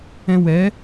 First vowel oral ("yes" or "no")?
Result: no